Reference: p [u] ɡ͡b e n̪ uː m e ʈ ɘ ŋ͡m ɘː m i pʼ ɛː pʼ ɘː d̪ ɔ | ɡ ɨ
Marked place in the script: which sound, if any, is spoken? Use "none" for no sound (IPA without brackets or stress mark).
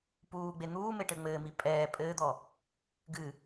uː